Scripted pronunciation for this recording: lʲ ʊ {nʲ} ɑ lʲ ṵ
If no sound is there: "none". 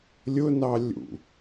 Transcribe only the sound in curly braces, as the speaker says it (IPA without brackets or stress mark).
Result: n